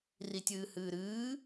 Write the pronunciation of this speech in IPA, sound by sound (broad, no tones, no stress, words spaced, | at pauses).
ritʲɨːhɨːɾɨː